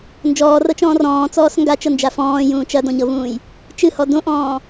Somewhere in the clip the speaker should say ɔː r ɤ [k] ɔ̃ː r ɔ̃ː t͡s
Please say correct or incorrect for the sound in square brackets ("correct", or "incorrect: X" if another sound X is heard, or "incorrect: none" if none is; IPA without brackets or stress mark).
incorrect: t͡ʃ